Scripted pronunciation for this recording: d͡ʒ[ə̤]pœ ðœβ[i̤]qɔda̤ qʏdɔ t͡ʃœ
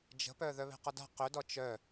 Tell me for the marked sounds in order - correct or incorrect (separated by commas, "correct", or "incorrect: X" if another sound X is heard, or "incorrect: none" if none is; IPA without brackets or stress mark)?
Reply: correct, incorrect: e̤